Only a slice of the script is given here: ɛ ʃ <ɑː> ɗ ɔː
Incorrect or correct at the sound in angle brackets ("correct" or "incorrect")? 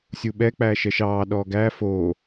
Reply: correct